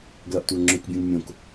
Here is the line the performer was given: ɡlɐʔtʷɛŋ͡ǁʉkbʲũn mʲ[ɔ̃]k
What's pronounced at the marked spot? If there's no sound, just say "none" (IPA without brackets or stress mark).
õ